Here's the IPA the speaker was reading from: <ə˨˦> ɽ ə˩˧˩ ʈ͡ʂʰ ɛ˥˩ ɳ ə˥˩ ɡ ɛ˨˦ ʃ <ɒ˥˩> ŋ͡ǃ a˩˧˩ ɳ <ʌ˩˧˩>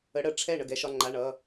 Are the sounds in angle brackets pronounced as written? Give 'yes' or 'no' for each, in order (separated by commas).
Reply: yes, no, yes